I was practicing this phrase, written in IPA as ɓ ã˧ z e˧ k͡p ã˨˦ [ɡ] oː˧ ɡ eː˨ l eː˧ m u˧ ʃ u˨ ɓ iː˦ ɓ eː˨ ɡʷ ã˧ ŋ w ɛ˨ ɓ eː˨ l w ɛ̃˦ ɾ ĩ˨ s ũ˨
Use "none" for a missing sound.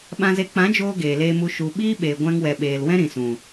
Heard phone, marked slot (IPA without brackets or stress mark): d͡ʒ